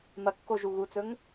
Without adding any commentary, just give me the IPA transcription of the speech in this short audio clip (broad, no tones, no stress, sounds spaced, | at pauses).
m ɐ kː o ʒ u ɣ u t͡s ɵ ŋ